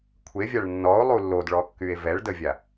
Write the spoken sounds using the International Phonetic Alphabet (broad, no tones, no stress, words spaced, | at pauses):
kʷʰevʲaɭ nːɔo̯ lˠulːodɭɔkːye̯ vɛɭdəvʲa